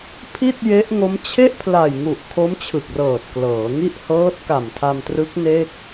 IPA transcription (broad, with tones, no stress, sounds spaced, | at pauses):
pʰ i˥˩ t̚ j e˦˥ ʔ ŋ o˦˥ m t͡ɕʰ e˥˩ ʔ pʰ l a˨˩ j ŋ u˨˩ ʔ kʰ o˦˥ m t͡ɕʰ ɯ˨˩ k̚ r ɤː˨˩ t̚ k l ɤː˩˦ ŋ i˥˩ ʔ h ɤː˦˥ t̚ k a˨˩ m tʰ a˧ m t r ɯ˦˥ k̚ n e˥˩ k̚